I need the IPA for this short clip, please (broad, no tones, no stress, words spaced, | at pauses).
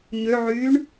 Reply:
ɲøʕyːɳ